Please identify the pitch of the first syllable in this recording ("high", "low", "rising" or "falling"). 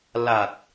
low